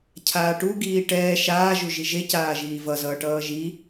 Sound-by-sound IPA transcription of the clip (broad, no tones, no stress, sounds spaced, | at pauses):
cʰ aː ʈ u ɡ iː ʈ ɛː ʃ aː ʒ u ʒ i ʒ e c aː ʒ iː v ʌ z ʌː ʈ ʌː ʒ i